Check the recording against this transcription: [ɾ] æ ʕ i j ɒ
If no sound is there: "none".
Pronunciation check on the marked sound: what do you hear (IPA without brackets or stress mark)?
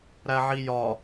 ɾ